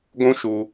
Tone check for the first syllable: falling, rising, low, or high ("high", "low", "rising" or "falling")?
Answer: high